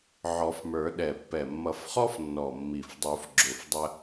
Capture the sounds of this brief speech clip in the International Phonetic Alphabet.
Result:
ʕ ɔ˨˩˦ f m ə˞˨˩˦ ɗ ɛ˨˩ pː ɛ˨˩ mː ʌ˨˩˦ f χ ɔ˥ f nː ɔ˨˩ mː i˨˩ f dˤ u˨˩˦ f ɡ͡ǁ ʊ˨˩ f dˤ ə˧

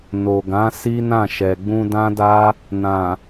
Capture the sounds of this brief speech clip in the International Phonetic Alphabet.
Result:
n o˨ ɡ ã˨˦ s i˦ n ã˦˨ ʃ ɛ˨ ɡ͡b ũ˧ d ã˦ d a˦ | n ã˨

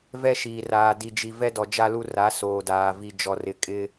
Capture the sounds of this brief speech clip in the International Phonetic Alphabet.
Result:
v ɛ˦ ʃ iː˨ r aː˨ d i˨ d͡ʒ i˨ v ɛ˦ d ɔ˨ d͡ʒ a˦ l u˦ r a˨˦ s oː˨ d aː˨ v i˨ d͡ʒ ɔ˨ r ɪ˨ kʼ ɪ˦

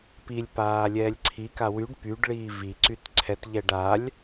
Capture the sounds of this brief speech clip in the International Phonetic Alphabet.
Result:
p i lʲ p aː lʲ ɛː lʲ ǀʰ i k a w y ɖ p y ɖ ɭ iː v i ǀ y t ǀʰ ɛ t ʎ ɛ ɖ a lʲ

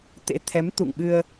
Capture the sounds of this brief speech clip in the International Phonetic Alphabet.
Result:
t̪ ḛ˧˥ t̪ʰ ɛ˨˦ m t̪ ṵ˧˨ ŋ ɓ ɨ˧ ə̯

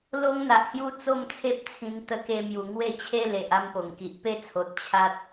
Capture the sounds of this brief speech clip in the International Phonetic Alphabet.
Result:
l o˦ ŋ n̪ a˨ ʔ h j u˦ t͡s o˥˧ m t͡sʰ e˦ p̚ t͡sʰ ĩ˧ ŋ t̪ ə˧ k e˧ m j u˨˩ ŋ w e˥˧ t͡ɕʰ e˦ l e˨ ʔ a˥˧ m p o˨˩ ŋ k i˨ ʔ p e˥˧ t͡sʰ o˨ t̚ t͡ɕʰ a˦ t̚

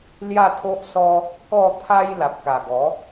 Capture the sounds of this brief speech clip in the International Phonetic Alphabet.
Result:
l j a˥˧ t̪ʰ o˦ ʔ s ɔ˦ | k ɔ˥˧ t̪ʰ a˦ j l a˨ p̚ k a˨˩ ɡ ɔ˨˦

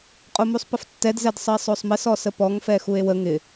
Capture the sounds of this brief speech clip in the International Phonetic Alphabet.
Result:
qʼ o m u sˤ p ə f tː ɛ d z ɛ d sˤ ə e̯ sˤ o sˤ m ɪ s ɔ s ə p ɔ ŋ f ɛ x u e̯ w ə ŋ ɪ

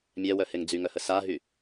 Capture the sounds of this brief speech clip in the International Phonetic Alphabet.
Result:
mʲ ɛ w œ h e ŋ d͡z y ŋ œ h ə s a ɦ y

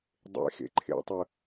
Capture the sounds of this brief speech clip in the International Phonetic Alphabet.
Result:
dˤ ḛ x ḛ ǃʰ ḛ tˤ ə

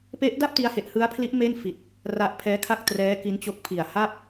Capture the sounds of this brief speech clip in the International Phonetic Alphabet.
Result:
p e˦˥ ʔ d a˥˩ p̚ t i˥˩ a̯ h e˥˩ ʔ h ɯ˦˥ a̯ pʰ l i˦˥ ʔ m e˥˩ n f i˨˩ t̚ | r a˦˥ ʔ pʰ ɛː˦˥ kʰ a˥˩ k̚ t r ɛː˦˥ k i˦˥ n t͡ɕ o˦˥ k̚ pʰ i˨˩ a̯ h a˥˩ p̚

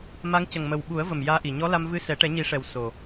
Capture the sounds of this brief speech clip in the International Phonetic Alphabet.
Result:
m a˧˥ ŋ c ə˨˩ ŋ m ə˨˩ w ɓ u˨˩˦ ə̯ v ə˨˩ m j aː˧ ʔ i˨˩ ɲ ɔ˧˥ l a˧ m v ɨ˧˥ s ɛ˨˩˦ ʈ ɛ˨˩˦ ɲ i˨˩˦ ʂ ɛ˨˩ w s o˨˩

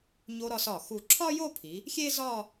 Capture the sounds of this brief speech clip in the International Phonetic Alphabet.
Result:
ɲ o˧ ɾ ɒ˧ s ɒ˧˩ x u˧˩ ǁʰ ɒ˥ j o˥˧ pʰ i˩˧ | xʲ eː˥ z ɒː˥˧

